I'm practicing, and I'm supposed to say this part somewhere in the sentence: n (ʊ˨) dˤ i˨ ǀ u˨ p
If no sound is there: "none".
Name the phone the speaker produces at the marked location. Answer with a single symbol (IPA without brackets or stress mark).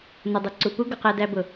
ʊ˨